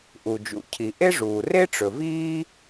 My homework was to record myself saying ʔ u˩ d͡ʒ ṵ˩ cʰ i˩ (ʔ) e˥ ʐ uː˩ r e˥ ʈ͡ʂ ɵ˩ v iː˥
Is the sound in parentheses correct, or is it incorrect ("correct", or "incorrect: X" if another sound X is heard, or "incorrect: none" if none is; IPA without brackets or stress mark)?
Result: correct